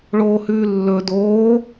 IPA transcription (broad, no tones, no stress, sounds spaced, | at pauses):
ɭ oː h ʉː lː ɵ d oː